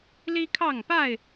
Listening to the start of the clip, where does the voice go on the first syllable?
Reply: high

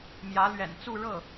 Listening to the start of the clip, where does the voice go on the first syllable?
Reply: rising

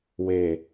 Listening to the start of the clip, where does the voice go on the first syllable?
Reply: low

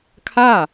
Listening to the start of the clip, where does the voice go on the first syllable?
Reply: falling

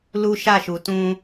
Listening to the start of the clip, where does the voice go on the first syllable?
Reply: high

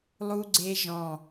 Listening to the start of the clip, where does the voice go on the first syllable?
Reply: high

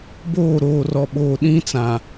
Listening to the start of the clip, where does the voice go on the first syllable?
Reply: falling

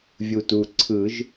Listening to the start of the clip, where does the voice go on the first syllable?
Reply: low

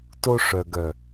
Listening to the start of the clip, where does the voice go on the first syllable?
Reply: high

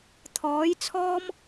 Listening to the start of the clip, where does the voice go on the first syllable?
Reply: rising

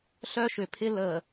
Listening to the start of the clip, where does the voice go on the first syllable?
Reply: high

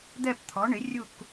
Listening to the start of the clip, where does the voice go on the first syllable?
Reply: falling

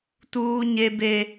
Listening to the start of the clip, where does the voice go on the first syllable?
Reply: high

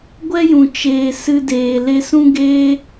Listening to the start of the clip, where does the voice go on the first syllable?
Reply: high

